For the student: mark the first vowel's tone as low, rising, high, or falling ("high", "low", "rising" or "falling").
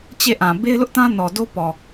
falling